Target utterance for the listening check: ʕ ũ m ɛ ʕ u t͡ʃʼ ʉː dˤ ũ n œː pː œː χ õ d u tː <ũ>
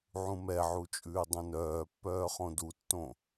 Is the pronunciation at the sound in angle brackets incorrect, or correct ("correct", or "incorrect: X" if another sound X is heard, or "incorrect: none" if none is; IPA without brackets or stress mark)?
incorrect: õ